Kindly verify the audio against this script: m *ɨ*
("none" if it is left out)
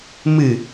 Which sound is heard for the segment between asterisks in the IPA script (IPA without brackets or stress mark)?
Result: ɨ